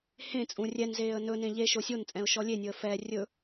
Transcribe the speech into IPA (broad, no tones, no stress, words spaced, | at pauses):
hẽt͡sʼũ rʲɛnzeːə̯ nɵnẽ ʎeʃo sʲont͡sʼɛ̃ʊ̯ ʃɔlʲenʲɵə̯ fɛ rʲɵ